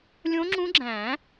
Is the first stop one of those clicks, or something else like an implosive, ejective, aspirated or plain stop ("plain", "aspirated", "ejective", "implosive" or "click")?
click